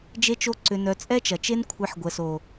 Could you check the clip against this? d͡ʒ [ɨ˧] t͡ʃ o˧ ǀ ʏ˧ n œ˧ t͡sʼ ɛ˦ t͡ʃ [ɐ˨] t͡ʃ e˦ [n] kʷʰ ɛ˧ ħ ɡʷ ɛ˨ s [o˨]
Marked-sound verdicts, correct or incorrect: incorrect: e˧, correct, correct, correct

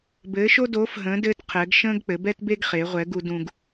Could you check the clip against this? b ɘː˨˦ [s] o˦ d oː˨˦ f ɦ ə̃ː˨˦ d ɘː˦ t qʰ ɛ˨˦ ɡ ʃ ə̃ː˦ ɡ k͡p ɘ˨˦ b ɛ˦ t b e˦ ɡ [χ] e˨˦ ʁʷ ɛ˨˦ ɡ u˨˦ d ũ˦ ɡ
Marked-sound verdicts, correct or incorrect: incorrect: ʃ, correct

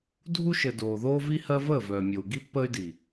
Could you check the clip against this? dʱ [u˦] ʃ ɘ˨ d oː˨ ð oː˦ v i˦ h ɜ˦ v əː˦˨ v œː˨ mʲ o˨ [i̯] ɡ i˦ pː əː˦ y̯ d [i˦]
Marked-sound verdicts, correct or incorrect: correct, incorrect: u̯, incorrect: i˨

